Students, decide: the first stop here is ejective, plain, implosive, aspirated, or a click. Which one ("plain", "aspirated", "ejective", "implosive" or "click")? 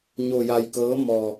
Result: plain